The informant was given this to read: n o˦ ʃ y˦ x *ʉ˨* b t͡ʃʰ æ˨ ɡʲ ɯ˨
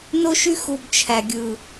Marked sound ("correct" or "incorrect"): incorrect